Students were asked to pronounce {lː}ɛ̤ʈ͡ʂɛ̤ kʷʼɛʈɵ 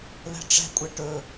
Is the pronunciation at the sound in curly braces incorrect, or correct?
incorrect